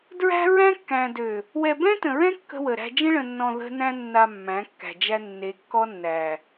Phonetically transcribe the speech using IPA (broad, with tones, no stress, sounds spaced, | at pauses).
d ɹ æ̤˦ ɹ æ̃˦ kː æ̃˨ d ø˨ | w ɛ˨ b ɛ̃˦ t ə̃˨ ɹ ɛ̃˦ kː ə̤˦ w ə˨ ɾ æ̤˦ d͡ʒ ə̃˦ ɭ ə̃˨ nː ɔ̃˨ ð ə̤˦ n æ̃˦ nː a˨ mː æ̃˨˦ kː æ̤˨ d͡ʒ æ˦ nː e˨˦ kː ɔ˦ nː æ˨